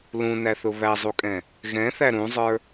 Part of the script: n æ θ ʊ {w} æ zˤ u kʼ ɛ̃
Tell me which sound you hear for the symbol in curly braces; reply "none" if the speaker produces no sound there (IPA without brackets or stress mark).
β